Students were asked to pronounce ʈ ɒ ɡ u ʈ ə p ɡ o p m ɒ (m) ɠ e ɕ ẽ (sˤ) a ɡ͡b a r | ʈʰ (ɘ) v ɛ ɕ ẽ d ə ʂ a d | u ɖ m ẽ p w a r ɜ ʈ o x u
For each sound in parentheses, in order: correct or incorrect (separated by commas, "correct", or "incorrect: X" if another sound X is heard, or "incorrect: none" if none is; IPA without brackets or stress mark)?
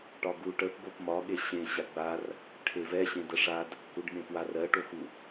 incorrect: none, incorrect: ɕ, incorrect: e